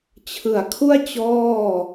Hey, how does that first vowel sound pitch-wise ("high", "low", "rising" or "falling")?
low